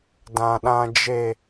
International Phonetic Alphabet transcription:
dã˨ɗã˨d͡ʒe˨

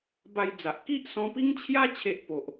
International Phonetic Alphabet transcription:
ba˧jd͡za˨ʔ ki˦ʔsɔ̃˧pi˦ŋt͡ɕʰja˦ t͡ɕʰe˦ʔpo˨ʔ

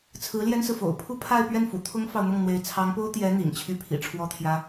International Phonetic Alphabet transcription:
t͡sʰɹ̩˧˥ljɛ˥nsɹ̩˨fo̰˨˩ʊ̯ pʰu˥˧pʰa˥˧ɪ̯pɥɛ˥˩nfṵ˨˩ t̪ʰʊ˥ŋfɑ˨ʊ̯n̪ʊ˥˩ŋ n̪we˧˥ɪ̯ t͡sʰɑ˧˥ŋpo˥ʊ̯t̪jɛ˧˥ n̪ḭ˨˩ŋt͡ɕʰy˥˩pʰḭ˨˩ ʈ͡ʂʰwɔ˥t̪ʰjä˥

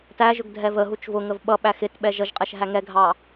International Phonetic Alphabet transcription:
tæʒʊɡ dʱɛvə ɦut͡ʃvʊŋəv ɓʌ ɓæxɪt ɓɛʒʌʒqʼɛʃ ɦæŋɛɡʱɑ

